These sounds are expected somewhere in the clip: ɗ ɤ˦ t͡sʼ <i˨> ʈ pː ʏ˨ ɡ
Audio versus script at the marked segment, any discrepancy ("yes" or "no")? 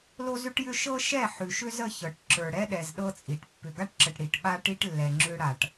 no